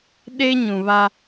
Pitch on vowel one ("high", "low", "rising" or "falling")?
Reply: high